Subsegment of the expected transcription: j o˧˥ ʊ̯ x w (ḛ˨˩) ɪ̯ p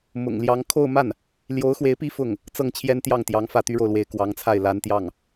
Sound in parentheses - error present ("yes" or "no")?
yes